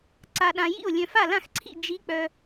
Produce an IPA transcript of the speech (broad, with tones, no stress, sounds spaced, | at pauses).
ǀ a˨ ɗ ã˨ j ḭ˥˩ o̯ lʲ œ̃˨ f a˥˩ l ã˥˩ x ǀʰ ḭ˥˩ d͡ʒ i˧˥ k͡p œ˨